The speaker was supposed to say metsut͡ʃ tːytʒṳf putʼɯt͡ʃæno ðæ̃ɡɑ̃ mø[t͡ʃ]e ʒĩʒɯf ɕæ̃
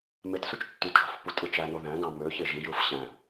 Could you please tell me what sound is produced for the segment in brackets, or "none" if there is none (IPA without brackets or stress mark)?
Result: ç